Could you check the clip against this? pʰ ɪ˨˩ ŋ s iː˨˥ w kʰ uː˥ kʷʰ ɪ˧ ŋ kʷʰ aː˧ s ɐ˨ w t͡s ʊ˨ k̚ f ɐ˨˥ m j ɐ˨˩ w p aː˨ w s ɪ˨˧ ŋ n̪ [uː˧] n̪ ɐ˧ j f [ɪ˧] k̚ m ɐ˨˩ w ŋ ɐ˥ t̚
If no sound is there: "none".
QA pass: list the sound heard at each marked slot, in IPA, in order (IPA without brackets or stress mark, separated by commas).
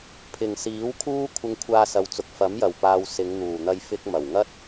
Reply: uː˨˩, ɪ˧